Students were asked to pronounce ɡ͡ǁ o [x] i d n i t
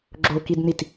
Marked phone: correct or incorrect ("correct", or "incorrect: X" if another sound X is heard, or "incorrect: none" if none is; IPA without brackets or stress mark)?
incorrect: k